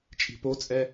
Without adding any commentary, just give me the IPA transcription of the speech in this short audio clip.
t͡ʃʼi̤pot͡sʼɛ

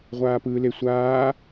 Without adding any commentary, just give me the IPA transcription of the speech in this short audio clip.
ʁʷaːpɯːlesʷaː

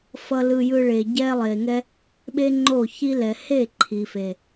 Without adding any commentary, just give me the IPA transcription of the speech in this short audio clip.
fʌ˧lɯ˧jɯ˧ ɭe˨ ɟɛ˦ lˠe˨ŋɛ˦ | ɓe˦ŋ͡ǃo˦˨çi˦ lɛ˨he˦˨ ǃʰi˨fe˨

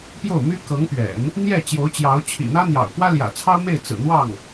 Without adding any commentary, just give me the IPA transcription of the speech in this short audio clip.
pjo˥˩ʊ̯my˥ kɤ˧˥ŋpɥɛ̰˨˩˦n | n̪jɛ˥˩ t͡ɕjo˧˥ʊ̯t͡ɕjɑ˧˥ʊ̯ t͡ɕʰḭ˨˩n̪ä˥n̪jɑ̰˨˩ʊ̯ pwä˥ljä̰˨˩t͡sʰɑ˥ʊ̯me˥˩ɪ̯ t͡sɹ̩˨˩ n̪wɑ˥˩ŋ

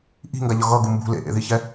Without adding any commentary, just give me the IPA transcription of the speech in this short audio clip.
ʔi̤ŋɡaʎʌ ɣʌɡu mbṳ lḛʔḛðiçɛ

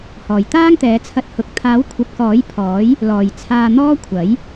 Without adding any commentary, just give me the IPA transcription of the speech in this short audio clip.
hɔː˨˩jt̪aː˥ŋt̪ɛː˨˧ t͡sʰɐ˧t̚hʊ˨˥k̚ t̪ʰaː˨˥wkʷʰɐ˨˥p̚kɔː˨˥jpʰɔː˨˥j | lɔː˨˩jt͡sʰaː˧n̪ɔː˥ kʷʰɐ˨˥j

